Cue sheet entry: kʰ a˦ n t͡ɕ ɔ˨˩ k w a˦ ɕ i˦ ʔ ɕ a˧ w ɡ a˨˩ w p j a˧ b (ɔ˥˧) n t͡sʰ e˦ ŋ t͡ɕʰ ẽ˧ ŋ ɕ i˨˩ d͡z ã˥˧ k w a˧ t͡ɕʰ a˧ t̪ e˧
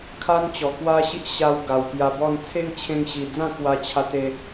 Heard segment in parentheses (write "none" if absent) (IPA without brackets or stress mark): ɔ˥˧